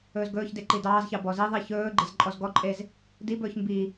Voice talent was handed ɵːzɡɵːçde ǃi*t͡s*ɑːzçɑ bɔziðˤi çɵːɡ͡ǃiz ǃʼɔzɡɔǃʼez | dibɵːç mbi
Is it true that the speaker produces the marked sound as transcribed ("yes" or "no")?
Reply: no